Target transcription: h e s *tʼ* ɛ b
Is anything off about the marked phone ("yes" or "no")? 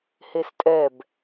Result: no